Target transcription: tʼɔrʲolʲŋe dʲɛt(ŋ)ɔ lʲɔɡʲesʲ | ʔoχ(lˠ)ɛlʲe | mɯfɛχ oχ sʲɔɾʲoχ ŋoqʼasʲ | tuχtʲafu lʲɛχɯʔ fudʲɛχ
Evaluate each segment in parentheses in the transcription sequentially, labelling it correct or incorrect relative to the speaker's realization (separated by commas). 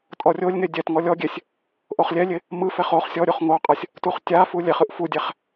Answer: correct, incorrect